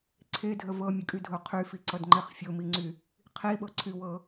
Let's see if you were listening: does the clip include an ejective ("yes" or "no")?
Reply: yes